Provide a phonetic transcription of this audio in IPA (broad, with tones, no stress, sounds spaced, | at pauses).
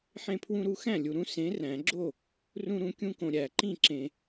ħ ẽ˦ pʰ w ũ˦ ɾ u˦ x æ̃˥˩ lʲ u˨ ɾ ũ˦ s ẽ˨˥ r æ̃˨˩˦ ɡ͡ǁ o˥˩ | r ũ˦ ɾ ũ˨˥ kʲ ũ˦ k õ˨ ɾʲ æ˨˩˦ ǃ ĩ˥˩ ǁ ẽ˨